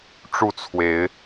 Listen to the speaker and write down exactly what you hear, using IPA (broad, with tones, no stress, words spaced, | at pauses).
ʈ͡ʂu˥˨t͡sʰwe˨˦ɪ̯